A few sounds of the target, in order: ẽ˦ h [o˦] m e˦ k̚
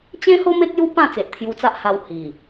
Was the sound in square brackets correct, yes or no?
yes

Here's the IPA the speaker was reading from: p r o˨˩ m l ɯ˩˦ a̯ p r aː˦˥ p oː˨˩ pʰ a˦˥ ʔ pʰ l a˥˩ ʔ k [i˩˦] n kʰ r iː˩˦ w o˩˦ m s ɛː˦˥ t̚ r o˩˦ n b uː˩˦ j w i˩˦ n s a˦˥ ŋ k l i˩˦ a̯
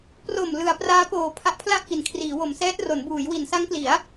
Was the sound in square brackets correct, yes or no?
yes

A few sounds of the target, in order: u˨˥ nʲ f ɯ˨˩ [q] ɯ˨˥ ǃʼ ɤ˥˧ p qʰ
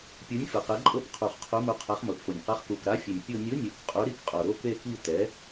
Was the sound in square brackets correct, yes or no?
yes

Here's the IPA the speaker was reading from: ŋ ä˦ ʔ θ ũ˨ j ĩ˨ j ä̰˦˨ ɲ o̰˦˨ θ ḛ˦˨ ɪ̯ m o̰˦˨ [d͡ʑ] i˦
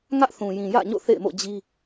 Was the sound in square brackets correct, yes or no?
yes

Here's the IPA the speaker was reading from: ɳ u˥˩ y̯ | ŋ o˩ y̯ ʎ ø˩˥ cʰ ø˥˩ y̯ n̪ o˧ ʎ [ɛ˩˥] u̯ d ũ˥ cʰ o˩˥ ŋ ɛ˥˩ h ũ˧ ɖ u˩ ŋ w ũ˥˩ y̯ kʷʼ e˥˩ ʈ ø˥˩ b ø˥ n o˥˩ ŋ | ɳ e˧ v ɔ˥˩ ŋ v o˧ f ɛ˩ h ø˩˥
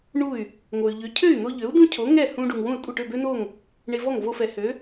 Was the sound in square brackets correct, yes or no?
no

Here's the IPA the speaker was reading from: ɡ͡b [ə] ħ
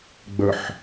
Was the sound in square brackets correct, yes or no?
yes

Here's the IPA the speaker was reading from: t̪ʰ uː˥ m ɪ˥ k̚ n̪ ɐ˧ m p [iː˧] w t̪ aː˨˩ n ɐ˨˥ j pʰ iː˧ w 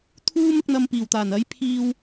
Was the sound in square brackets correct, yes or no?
no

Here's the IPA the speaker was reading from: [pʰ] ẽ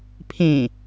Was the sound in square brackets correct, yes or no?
yes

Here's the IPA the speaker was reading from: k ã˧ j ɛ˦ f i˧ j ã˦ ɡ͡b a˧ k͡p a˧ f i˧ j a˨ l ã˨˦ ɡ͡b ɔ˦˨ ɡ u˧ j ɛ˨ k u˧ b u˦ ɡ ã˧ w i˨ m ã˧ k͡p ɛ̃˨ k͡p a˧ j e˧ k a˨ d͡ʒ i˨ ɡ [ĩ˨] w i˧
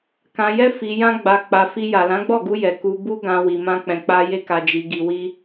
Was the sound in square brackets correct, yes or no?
no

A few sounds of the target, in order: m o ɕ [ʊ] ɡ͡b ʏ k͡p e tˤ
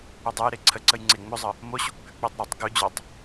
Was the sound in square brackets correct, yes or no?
no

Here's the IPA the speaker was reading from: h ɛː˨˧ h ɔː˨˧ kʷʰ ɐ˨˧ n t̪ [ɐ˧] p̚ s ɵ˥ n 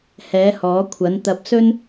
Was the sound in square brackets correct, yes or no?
yes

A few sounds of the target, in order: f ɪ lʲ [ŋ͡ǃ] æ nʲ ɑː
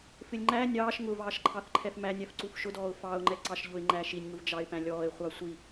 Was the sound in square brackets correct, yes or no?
yes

